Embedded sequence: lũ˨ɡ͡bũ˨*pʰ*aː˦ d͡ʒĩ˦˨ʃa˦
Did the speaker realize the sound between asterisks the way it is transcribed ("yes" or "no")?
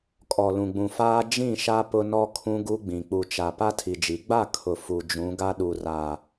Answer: no